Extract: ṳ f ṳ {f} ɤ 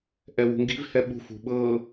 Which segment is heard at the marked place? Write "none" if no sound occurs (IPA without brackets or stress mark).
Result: ɓ